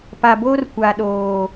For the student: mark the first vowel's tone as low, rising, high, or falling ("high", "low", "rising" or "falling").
low